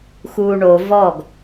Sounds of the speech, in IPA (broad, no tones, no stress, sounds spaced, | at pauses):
x uː ɳ o v ɔ ɡ